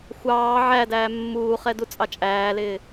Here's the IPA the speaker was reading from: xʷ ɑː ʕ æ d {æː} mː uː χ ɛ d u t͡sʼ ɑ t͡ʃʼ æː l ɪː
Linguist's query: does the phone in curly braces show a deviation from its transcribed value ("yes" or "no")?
no